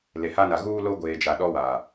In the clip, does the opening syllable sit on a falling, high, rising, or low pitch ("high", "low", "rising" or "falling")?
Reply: low